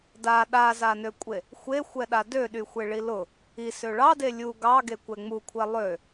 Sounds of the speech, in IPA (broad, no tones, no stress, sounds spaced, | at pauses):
d a ɗ a z a n ø kʷʼ e | xʷ e xʷ ɛ ɗ a d ø ɗ y xʷ e ɭ i l ʊ | i s ø ɭ ɑ d e lʲ u ɡ ɑ ɡ e kʷ ɛ ŋ͡m u kʷʰ ɛ lˠ ø